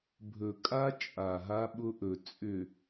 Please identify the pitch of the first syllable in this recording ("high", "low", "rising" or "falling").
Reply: low